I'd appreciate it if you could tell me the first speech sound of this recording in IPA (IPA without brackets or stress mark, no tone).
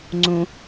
ŋ͡ǀ